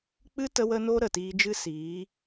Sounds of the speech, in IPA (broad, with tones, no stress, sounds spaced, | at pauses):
k͡p ɨ˦ t ə˧ w ə˧ n o˧ ɾ ə˨ t iː˧ d͡ʒ ɨ˦ s iː˨˦